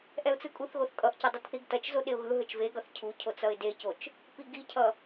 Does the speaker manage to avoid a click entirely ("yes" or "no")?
yes